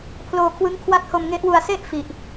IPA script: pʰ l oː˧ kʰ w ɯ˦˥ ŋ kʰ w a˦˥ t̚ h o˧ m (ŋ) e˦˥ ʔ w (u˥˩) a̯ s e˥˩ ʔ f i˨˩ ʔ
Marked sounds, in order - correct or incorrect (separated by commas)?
correct, incorrect